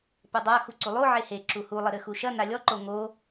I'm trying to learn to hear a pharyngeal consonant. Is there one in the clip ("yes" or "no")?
yes